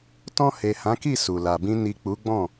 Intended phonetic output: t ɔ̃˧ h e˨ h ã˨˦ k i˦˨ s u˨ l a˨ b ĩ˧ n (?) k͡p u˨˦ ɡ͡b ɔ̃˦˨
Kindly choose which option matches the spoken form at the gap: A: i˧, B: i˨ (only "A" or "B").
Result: B